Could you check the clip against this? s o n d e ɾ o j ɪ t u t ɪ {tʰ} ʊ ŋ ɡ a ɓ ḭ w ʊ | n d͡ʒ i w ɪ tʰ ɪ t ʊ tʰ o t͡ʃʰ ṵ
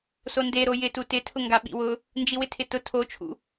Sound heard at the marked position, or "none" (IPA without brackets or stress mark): tʰ